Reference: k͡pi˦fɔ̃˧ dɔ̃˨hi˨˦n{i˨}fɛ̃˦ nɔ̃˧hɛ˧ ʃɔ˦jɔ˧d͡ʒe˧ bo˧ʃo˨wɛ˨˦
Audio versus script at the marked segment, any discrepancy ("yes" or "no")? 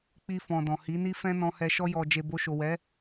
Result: yes